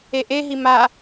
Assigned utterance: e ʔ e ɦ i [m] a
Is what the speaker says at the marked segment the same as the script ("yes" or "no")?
yes